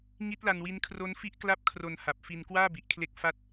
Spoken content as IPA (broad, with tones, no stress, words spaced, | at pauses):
ŋi˦˥t̚la˧nwi˦˥n kʰro˦˥nfi˥˩ʔkla˥˩p̚kʰro˧n ha˨˩p̚ fi˧nkwaː˥˩bi˨˩ʔ kʰle˥˩k̚fa˥˩t̚